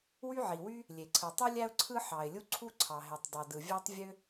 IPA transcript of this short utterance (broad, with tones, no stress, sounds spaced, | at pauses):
w y˥ ʕ i˩ w y˥ | lʲ e˩ ǀʰ ɯ˩ tˤ u˥ lʲ æ˥ ʊ̯ ǀʰ ɯ˥ ħ ɑ˩ ɪ̯ lʲ u˥ ǀʰ u˥ ǀʰ ɑ˩ ɦ e˩ tˤ dˤ o˩ d ɯ˩ vʲ æ˥ tˤ vʲ ø˥